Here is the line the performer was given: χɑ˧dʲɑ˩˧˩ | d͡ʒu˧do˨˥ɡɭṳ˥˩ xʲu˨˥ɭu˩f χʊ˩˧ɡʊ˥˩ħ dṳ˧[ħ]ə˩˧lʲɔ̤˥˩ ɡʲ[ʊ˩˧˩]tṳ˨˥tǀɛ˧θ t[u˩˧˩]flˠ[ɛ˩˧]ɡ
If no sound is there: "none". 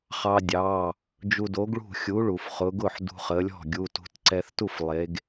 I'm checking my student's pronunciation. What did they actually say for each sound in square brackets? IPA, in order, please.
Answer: χ, u˩˧˩, u˥˩, e˩˧

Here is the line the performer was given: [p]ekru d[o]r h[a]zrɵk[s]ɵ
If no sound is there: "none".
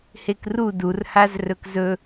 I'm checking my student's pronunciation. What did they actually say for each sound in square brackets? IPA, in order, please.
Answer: h, u, a, z

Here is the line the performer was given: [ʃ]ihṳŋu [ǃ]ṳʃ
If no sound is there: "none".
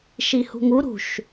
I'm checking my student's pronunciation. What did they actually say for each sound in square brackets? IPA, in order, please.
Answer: ʃ, ɾ

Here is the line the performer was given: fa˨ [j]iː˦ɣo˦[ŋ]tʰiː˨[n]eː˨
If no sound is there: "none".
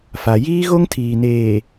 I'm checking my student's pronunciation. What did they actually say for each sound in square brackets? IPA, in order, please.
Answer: j, ŋ, n

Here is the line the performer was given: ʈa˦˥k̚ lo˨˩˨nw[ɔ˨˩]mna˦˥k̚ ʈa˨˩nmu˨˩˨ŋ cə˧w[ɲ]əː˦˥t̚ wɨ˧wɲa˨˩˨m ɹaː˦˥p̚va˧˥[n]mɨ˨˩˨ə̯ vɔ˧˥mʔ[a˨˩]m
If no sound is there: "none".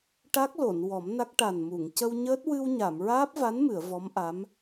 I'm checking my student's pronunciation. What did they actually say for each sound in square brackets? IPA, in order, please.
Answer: ɔ˨˩˦, ɲ, n, a˧˥

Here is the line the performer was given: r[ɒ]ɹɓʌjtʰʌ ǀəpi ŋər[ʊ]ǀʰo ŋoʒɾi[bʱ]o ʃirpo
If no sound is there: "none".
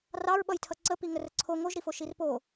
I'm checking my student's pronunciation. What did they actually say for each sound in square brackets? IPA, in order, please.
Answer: ɑ, ə, f

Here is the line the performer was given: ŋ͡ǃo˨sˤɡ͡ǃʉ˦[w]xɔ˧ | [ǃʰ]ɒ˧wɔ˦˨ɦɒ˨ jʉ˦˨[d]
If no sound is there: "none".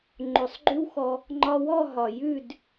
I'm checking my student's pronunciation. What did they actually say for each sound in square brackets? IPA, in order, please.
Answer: w, ŋ͡ǃ, d

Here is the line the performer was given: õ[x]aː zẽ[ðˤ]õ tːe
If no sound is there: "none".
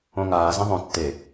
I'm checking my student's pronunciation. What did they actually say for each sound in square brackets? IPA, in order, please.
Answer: ŋ, ðˤ

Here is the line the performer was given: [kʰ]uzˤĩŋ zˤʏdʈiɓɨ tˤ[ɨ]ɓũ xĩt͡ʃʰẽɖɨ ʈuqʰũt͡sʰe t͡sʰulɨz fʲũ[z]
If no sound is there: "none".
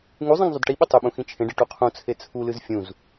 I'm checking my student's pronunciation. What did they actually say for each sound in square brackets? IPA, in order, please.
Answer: ŋ, ʏ, z

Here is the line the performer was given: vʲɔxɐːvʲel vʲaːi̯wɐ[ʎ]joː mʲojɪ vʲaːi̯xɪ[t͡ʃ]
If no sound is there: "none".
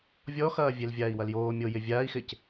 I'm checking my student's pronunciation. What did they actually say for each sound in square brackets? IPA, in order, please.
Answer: l, c

